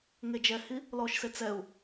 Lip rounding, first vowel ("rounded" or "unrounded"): unrounded